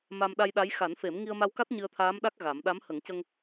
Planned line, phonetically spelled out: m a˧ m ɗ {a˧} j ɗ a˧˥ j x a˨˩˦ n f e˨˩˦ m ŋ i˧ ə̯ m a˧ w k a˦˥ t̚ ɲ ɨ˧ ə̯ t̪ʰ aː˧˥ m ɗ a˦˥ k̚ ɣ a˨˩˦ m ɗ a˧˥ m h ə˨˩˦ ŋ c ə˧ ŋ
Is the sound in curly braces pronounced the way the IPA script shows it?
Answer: yes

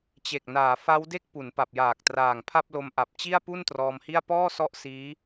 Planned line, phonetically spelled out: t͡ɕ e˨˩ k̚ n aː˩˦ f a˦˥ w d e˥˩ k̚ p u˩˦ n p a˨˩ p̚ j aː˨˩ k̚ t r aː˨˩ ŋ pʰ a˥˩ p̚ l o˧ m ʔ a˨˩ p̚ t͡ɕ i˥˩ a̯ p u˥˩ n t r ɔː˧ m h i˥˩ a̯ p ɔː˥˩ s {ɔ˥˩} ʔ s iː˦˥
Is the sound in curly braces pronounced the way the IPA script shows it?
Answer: no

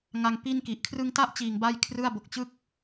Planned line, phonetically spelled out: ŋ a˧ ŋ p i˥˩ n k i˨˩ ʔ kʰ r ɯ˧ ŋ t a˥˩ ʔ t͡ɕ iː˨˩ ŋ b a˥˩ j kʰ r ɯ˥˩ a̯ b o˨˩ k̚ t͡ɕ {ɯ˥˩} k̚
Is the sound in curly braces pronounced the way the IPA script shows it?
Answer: yes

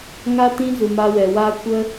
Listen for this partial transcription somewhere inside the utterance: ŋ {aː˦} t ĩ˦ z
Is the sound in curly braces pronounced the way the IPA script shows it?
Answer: no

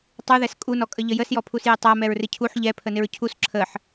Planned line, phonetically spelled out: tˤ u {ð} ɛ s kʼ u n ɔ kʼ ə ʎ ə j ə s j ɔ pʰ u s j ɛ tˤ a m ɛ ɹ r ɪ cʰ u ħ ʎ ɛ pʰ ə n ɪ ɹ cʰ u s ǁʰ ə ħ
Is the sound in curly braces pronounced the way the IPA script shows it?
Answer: yes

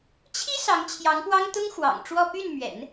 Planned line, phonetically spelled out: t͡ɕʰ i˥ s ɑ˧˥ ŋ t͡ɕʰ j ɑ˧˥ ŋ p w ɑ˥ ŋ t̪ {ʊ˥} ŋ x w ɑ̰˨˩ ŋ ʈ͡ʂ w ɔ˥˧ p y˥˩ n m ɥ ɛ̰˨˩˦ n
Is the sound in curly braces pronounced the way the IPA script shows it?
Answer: yes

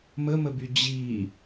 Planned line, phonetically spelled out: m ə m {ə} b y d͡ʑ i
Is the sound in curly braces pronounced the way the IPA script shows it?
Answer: yes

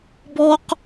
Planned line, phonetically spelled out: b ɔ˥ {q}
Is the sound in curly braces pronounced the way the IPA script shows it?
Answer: yes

